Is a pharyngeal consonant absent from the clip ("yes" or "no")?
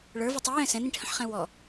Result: no